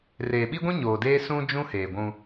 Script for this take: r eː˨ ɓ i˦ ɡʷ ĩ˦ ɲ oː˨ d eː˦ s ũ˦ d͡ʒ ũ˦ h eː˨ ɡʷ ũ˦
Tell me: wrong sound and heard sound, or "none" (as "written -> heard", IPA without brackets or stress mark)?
none